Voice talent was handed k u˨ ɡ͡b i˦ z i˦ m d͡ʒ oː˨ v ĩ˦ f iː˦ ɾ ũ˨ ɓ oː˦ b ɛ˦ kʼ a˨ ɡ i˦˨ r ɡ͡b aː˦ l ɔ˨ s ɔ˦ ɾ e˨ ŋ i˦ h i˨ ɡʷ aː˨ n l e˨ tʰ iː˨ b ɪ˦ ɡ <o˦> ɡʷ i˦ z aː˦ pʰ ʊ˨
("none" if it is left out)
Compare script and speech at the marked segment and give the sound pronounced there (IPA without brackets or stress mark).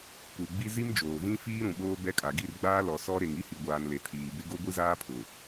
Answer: o˦